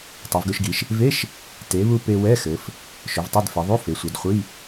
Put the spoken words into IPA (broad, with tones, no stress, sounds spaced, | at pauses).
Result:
tˤ ɵ˩˧ v ɡ ɵ˧ ʃ ɡ i˩˧ ʃ | v e˧˥˧ ʃ | t e˩˧ β u˧ p e˧ w ɛ˧˥˧ x ɘ˩˧ f | ʃ ɵ˩˧ v tˤ ɛ˧˥˧ d f e˩˧ ðˤ u˧˥˧ f e˩˧ sʷ ɛ˩˧ d χʷ i˧˥˧